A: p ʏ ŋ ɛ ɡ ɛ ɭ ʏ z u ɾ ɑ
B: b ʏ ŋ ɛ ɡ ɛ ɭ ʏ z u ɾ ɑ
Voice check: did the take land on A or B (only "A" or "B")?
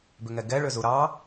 B